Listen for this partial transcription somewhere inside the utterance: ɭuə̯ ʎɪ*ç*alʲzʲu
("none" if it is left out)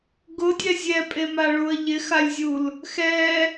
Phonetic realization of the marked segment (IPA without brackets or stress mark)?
x